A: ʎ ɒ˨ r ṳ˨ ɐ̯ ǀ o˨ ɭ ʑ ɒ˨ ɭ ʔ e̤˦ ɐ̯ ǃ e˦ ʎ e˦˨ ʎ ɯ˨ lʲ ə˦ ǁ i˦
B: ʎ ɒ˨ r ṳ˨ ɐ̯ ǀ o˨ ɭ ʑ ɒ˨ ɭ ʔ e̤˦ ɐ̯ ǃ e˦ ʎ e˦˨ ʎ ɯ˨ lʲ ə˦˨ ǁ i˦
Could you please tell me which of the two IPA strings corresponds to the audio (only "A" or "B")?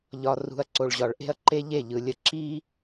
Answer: B